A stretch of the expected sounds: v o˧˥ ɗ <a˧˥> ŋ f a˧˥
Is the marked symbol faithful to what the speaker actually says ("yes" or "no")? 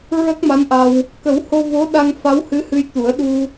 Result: no